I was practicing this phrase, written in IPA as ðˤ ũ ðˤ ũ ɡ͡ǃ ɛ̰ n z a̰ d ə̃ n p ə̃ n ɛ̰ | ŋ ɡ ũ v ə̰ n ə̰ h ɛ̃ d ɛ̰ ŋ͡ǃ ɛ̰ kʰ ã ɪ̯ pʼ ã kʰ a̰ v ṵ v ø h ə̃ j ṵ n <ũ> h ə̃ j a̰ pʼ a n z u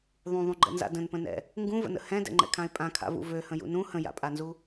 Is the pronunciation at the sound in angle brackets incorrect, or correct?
correct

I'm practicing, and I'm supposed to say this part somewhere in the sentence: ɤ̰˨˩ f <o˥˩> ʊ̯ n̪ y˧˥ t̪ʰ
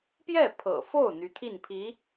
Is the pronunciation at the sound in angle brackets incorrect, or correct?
correct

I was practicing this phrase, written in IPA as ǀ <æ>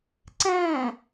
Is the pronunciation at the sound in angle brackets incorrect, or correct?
incorrect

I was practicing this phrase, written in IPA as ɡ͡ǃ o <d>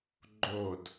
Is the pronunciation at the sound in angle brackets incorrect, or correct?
correct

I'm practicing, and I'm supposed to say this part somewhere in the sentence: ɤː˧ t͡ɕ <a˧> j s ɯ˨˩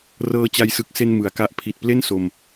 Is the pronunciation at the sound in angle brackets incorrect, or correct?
correct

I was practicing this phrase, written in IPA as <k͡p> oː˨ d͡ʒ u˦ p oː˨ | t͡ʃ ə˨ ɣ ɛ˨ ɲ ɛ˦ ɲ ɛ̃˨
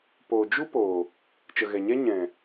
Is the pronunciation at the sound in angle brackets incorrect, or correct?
incorrect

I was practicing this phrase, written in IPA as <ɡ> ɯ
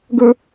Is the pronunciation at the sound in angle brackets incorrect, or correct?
correct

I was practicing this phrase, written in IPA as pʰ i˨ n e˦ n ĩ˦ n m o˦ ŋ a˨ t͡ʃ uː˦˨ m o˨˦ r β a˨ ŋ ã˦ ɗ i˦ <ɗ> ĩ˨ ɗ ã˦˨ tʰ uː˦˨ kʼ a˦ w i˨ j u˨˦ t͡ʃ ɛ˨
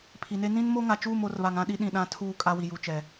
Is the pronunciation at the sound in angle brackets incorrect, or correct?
correct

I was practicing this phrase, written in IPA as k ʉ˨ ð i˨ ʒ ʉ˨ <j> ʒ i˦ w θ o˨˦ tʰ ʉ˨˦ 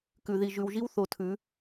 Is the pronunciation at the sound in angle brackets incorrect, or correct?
incorrect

